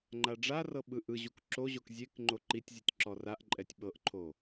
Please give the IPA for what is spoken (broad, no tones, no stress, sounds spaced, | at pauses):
ŋ͡ǃ a ɖ͡ʐ a r ɤ ɓ ɯ ʔ ɯ ʑ u k ǁ o ʑ o k zʲ e k ŋ͡ǃ o ǃ i tʲ zʲ ɯ tʲ ǁ ɔ r a ʔ ǃʼ ɛ tʲ ɓ ɤ ʔ ǃʰ o